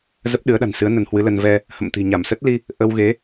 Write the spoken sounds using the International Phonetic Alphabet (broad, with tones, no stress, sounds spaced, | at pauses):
z ə˦˥ p̚ ɗ ɨ˨˦ ə̯ ɗ a̤˨˩ n s ɨ˨˦ ə̯ n ə˨˦ n h w ɨ˨˦ l ə˧ n v ɛ˧ | h ə̰˧˨ m t̪ i̤˨˩ ɲ a˧˩ m s ə˦˥ t̚ l i˧ | ʔ ə˧ w ɣ e˨˦